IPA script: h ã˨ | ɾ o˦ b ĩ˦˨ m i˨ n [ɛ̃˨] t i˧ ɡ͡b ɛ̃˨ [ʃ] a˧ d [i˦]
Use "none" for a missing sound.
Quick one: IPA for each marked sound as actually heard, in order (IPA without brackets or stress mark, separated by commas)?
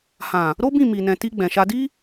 ɛ̃˨, ʃ, i˦